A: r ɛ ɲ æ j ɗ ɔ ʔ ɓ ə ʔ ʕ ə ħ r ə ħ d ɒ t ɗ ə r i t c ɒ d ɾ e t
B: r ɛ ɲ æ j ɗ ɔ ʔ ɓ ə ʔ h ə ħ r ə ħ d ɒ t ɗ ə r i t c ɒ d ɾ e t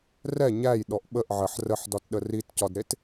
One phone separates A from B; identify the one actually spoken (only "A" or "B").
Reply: A